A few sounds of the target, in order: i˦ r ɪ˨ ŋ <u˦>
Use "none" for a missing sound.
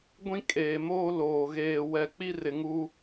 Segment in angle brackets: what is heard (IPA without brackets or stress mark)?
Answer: u˦